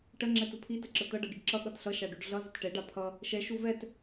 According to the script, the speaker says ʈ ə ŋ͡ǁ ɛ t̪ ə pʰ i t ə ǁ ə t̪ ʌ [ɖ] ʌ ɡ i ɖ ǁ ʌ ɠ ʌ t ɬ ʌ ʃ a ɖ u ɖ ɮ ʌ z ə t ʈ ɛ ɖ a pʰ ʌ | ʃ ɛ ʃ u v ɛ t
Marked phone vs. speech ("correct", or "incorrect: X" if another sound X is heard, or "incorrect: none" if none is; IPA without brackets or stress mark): correct